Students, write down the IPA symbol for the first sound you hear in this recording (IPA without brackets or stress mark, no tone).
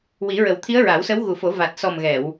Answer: w